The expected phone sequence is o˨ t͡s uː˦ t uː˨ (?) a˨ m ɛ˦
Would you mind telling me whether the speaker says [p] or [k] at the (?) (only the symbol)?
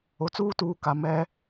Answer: k